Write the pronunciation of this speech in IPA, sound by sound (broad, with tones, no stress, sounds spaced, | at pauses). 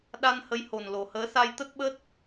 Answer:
ɗ a˧ n h ə˨˦ j h o˨˩ n l o˨˩ h əː˨˦ s a˧ j t̪ ə˦˥ t̚ ɓ ə˦˥ t̚